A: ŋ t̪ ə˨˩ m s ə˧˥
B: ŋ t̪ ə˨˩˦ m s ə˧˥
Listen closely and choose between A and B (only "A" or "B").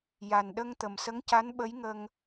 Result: A